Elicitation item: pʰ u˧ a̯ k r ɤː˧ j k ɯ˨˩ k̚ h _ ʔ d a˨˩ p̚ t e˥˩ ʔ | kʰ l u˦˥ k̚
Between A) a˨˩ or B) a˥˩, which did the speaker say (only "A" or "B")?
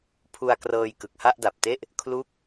B